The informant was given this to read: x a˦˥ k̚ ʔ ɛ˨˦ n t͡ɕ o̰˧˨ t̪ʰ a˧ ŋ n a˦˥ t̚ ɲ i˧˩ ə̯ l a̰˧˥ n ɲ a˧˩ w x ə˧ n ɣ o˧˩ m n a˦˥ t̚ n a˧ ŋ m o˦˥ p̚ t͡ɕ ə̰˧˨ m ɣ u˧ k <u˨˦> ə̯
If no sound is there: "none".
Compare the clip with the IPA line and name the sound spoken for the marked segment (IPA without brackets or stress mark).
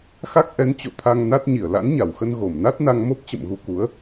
u˨˦